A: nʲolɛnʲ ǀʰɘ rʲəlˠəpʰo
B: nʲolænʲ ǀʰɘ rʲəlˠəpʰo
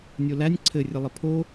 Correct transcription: B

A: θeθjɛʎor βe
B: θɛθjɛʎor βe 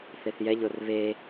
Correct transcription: A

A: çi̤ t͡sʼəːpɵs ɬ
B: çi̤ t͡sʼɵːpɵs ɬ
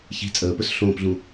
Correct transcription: A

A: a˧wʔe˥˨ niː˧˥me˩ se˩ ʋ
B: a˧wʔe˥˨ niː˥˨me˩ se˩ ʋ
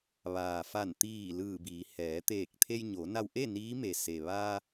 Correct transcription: A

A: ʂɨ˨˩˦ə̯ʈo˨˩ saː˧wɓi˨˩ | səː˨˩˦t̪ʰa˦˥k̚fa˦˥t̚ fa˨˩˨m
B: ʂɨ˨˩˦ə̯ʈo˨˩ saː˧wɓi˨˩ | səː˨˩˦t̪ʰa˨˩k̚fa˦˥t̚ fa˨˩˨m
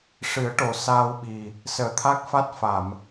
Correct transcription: A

